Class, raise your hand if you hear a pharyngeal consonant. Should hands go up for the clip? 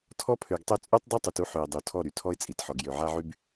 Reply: yes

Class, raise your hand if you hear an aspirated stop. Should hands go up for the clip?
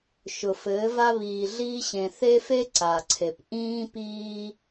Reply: yes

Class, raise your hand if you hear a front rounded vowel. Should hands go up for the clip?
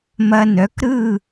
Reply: yes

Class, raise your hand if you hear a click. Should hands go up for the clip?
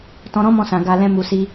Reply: no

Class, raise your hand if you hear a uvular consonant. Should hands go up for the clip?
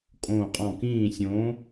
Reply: yes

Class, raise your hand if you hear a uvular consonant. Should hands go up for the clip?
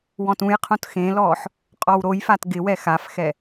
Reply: yes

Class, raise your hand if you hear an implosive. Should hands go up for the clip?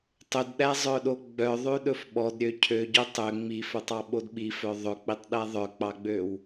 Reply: yes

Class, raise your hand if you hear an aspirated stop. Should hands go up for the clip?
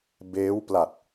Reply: no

